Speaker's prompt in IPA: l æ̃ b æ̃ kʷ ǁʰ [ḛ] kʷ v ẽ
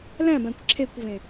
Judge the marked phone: incorrect: e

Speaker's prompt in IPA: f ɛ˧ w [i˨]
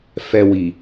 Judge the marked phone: correct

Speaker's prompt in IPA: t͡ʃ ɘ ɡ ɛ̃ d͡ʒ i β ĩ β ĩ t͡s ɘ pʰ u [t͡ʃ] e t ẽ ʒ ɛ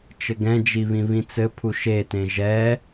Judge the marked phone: incorrect: ʃ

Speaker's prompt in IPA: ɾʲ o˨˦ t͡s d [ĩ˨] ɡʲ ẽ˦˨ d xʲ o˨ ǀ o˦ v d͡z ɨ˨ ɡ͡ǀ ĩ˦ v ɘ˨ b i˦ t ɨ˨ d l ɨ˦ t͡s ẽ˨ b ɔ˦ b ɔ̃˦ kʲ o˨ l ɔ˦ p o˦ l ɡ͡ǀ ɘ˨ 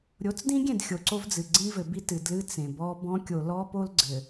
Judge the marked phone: incorrect: ĩ˦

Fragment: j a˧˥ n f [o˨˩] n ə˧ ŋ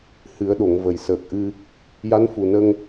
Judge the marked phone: incorrect: u˨˩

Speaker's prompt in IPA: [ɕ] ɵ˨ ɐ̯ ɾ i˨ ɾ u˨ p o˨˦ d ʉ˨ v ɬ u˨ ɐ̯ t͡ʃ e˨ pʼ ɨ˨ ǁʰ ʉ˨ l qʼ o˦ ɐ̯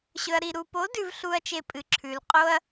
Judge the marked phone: correct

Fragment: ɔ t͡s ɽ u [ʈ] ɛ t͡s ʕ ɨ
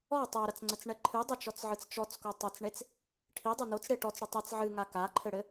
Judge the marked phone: incorrect: tˤ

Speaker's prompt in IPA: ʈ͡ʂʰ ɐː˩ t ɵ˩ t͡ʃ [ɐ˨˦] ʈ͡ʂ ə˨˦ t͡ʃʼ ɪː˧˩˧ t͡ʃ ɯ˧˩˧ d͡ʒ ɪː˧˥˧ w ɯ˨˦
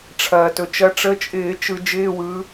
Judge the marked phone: correct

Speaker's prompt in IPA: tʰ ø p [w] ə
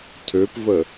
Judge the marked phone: incorrect: v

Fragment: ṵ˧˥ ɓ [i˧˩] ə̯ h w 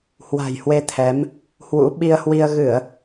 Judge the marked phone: incorrect: i˧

